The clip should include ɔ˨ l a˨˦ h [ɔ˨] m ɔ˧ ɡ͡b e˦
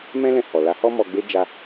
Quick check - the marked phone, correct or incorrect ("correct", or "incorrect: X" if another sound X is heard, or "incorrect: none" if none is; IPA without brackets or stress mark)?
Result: incorrect: ɔ˦